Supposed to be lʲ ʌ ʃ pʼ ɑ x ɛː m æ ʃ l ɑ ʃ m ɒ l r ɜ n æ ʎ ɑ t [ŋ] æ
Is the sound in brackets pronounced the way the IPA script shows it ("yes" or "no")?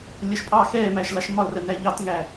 yes